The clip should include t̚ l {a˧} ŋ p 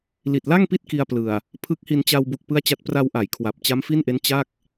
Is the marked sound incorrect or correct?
incorrect